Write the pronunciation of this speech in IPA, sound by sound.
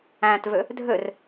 æ̃ t v ø | dʱ ø r

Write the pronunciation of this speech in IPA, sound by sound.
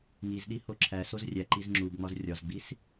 ŋ i z ɗ i h o ǁʰ æ s o z rʲ æ ǃ i z ŋ͡ǁ u b ŋ͡m ɒ z rʲ ɒ z ɡ͡b i s

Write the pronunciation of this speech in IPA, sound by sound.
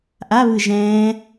ʔ a β ɯ ʒ ɛ̃ː

